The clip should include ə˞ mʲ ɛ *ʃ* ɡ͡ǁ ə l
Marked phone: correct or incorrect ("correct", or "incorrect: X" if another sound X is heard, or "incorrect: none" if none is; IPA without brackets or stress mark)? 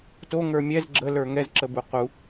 incorrect: z